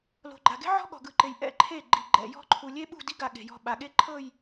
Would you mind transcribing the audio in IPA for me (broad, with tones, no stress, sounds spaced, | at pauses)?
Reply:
l o̤˨ ɡ͡ǃ a˨ ɡ e̤˦ ʕ ɔ̤˦ ɠ ɔ̤˨ ɡ ɯ˨ ǃ e˨ j ʔ ɛ̰˦˨ ǃʰ e˦˨ ɡ͡ǃ i˨ ɡ͡ǃ ɛ̰˨ j ɔ̤˦ ǃʰ u˨ lʲ e˦ ɓ ṳ˦˨ d i˦ ɡ a˦˨ ɠ e̤˨ j ɔ̤˦ ɓ a˨ ɠ e˦ ǃʰ ɤ˦˨ j